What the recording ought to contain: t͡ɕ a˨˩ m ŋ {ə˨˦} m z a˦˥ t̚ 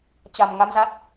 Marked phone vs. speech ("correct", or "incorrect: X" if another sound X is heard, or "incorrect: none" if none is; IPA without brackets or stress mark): incorrect: a˨˦